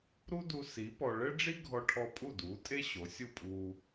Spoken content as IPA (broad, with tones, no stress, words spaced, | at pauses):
ɾu˥du˧ si˩˥ pɔ˧ ɭɘ˥ɖ͡ʐi˥ ɡʱɔ˧ʈʰɔ˧ pʼu˥˩duː˩˥tʼe˥ ɕo˩˥ sʲu˥˩pʼuː˧